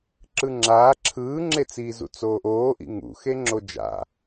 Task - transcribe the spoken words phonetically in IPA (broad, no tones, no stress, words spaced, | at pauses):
ǁɯŋ͡ǁaː ǁʰɯːŋ͡ǁet͡siːzṵ t͡soːʔoːʔḭ ŋṵxeŋ͡ǁo d͡ʒa̰